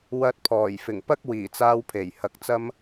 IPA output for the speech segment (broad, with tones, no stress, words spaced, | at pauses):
wɐ˧t̚pʰɔː˨˩j fɪ˨˩ŋpɐ˥k̚ wiː˨˩t͡saː˧wpʰe˨˩j hɐ˨˥k̚t͡sɐ˥m